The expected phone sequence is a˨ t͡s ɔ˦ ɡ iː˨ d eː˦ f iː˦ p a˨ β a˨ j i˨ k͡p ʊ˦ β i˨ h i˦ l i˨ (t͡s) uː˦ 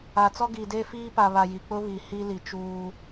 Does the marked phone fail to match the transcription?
yes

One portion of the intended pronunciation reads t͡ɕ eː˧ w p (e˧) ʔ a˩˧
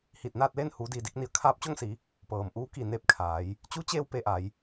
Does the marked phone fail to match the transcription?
no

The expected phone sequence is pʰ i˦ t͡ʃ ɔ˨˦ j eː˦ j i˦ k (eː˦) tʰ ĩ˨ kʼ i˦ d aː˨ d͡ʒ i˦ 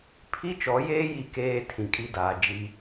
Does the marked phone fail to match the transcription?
no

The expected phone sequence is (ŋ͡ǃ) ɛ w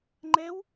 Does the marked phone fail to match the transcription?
no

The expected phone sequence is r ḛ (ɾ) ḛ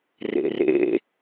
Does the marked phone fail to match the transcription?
yes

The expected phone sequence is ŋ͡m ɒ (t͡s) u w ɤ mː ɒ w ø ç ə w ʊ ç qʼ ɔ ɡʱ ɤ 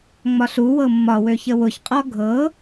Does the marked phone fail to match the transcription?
yes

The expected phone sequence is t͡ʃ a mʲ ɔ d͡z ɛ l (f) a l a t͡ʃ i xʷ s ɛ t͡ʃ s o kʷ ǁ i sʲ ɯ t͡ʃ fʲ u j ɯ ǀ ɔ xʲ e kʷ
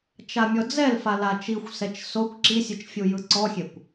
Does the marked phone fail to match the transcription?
no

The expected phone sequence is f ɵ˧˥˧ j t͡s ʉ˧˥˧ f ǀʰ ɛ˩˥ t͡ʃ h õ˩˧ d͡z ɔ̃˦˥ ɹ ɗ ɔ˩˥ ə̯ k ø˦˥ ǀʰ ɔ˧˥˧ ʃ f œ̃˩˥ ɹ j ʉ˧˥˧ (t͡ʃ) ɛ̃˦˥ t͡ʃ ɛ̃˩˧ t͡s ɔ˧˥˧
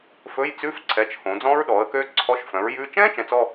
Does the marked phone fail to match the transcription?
no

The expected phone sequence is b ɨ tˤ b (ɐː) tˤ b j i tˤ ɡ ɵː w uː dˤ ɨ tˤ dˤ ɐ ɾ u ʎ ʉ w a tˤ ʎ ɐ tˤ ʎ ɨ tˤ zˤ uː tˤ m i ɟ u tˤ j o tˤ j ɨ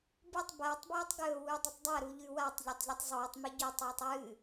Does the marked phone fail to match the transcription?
no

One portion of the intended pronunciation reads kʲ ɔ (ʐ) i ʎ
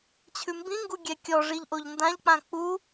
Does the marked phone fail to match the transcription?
no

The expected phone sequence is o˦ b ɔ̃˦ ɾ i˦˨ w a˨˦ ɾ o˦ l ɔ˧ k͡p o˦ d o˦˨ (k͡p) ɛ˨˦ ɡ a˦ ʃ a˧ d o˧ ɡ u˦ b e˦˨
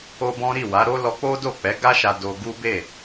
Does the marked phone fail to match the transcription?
no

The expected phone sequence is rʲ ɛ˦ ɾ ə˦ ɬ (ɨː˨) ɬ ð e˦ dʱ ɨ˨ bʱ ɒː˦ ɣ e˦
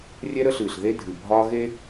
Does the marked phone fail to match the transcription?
no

